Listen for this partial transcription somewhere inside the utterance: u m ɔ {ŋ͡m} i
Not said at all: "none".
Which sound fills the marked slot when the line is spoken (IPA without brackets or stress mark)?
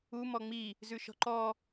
ŋ͡m